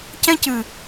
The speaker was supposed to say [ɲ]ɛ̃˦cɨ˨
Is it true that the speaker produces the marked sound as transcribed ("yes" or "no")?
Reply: no